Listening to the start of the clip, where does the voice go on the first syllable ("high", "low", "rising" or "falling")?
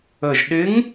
low